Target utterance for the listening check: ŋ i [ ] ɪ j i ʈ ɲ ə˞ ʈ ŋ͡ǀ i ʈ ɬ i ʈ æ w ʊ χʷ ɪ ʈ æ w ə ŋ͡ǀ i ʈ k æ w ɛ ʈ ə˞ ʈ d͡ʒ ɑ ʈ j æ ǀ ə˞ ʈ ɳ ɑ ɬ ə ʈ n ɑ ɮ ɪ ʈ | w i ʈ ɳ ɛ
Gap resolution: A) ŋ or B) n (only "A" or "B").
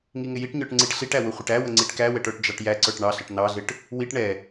A